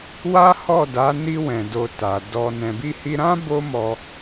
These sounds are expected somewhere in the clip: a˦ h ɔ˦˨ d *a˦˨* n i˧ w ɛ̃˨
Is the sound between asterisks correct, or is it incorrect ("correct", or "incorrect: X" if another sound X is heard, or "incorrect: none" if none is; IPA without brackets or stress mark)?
incorrect: a˨˦